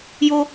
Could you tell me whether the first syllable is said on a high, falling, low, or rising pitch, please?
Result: high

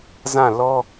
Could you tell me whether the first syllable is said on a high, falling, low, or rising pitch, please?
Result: falling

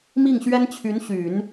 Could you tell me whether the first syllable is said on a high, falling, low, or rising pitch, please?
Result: falling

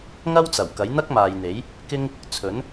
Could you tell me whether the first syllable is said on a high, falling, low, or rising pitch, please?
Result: high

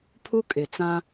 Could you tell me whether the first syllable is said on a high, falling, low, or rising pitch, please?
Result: high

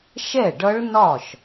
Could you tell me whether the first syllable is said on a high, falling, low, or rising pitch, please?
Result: falling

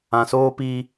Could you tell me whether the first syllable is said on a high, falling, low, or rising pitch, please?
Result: low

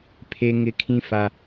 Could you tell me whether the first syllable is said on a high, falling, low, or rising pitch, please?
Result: high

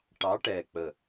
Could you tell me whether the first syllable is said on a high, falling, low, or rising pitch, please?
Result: rising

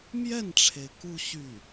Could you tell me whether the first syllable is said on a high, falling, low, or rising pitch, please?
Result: falling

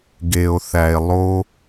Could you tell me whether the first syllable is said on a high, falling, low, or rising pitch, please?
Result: low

